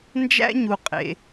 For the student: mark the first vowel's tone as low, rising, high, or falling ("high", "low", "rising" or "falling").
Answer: high